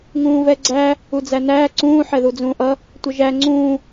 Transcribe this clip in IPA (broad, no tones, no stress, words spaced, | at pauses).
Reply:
ŋũːvɛɡ͡ǀæ | ud͡zænæː ǀũː ħɛðud͡zũːʔʌ | tʷəʒæ ŋ͡ǀũː